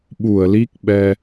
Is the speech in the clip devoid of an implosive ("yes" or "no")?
no